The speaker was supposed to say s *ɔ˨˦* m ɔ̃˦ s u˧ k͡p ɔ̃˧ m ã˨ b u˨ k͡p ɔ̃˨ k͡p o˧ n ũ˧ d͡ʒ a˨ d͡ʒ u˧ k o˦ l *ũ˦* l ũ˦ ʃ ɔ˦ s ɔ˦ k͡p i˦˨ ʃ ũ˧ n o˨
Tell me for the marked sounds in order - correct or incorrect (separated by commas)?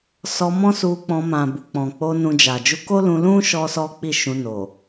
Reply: incorrect, incorrect